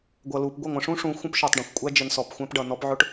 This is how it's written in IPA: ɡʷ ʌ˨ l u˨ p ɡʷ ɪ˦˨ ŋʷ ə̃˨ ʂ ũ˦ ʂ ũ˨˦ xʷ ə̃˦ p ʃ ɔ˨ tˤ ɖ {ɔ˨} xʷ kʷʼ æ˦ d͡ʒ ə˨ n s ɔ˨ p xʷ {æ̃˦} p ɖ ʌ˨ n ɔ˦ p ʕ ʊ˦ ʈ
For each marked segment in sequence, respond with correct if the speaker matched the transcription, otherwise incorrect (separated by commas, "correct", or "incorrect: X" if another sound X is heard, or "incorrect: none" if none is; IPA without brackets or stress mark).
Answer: incorrect: ɔ̃˨, correct